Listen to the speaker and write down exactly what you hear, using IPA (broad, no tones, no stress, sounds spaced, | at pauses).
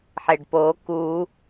ħ e ɖ p o k u